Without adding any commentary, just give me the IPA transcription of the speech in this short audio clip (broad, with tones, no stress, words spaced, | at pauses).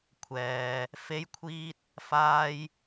kʷʰɛː˨ | fe˧j kʷʰiː˧t̚ | faː˧j